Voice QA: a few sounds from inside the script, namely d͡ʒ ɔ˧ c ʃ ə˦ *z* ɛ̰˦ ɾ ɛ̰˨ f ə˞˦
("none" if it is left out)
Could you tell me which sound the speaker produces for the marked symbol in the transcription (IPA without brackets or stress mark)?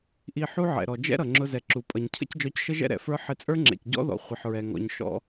ʒ